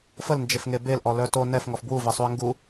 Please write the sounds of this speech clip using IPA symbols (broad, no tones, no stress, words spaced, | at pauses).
fəlnd͡ʒefŋe belʔɔlœ to nɛfŋɔf bwuvesˤuə̯ ŋɡu